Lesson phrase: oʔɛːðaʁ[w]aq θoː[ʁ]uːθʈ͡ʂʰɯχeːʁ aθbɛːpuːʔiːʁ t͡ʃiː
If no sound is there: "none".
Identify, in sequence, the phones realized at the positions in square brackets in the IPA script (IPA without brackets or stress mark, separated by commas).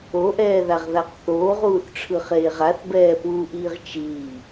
ð, ʁ